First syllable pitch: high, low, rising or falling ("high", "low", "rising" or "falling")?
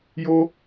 high